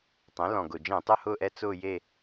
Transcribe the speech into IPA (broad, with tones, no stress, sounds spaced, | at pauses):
tˤ ɛ̃˩˥ l ɔ̃˨˩ ɡ ʊ˨˩ d͡ʒ ɛ̃˧˩˧ tˤ ʊ˧˥˧ h ʊː˦˨ ʔ ɛ˧˥ t͡s ʊː˦˨ j e˦˨